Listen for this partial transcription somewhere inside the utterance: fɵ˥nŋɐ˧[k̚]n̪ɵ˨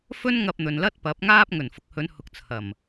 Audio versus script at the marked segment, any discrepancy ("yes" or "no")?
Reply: yes